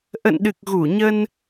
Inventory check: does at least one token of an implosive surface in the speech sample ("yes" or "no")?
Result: yes